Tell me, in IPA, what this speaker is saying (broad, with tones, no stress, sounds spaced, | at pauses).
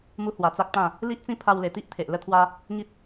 m u˦ h w a˧ t͡s a˦ k̚ t̪ ã˥˧ | l i˦ ʔ t͡s ĩ˦ pʰ a˧ w l e˨˩ t̪ i˦ ʔ t̪ʰ e˨ ʔ l ə˥˧ t̪ʰ w a˦ | ŋ i˦ t̚